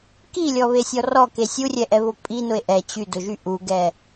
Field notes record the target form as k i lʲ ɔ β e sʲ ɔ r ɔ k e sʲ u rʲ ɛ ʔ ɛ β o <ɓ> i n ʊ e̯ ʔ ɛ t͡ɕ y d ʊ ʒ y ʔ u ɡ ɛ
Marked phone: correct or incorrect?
incorrect